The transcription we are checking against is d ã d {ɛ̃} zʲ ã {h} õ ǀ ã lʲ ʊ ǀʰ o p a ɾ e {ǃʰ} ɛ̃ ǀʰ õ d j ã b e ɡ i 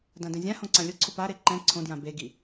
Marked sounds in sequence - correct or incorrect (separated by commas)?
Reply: correct, correct, incorrect